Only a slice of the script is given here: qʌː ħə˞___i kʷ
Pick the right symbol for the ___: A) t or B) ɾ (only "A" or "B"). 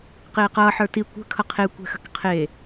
A